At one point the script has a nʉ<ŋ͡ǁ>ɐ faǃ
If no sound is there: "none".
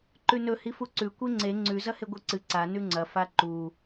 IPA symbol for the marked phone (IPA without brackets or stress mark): ŋ͡ǀ